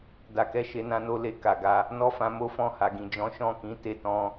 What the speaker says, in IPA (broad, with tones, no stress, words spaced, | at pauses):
da˧kɛ˦ ʃe˧nã˧no˧ le˨ ka˨ɡa˧ | nɔ˦fã˧mo˦fɔ̃˦˨ ha˨ɡĩ˨ d͡ʒɔ̃˨˦ʃɔ̃˦˨kĩ˨˦ te˧tɔ̃˧